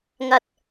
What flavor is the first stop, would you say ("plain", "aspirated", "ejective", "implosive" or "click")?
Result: plain